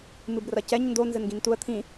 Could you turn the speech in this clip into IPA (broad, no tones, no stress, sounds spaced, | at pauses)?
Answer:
m ɨ b r ɐ c ɛ ɲ n d o n z ɘ n ɡ ĩ n t u ə̯ t̪ʰ ĩ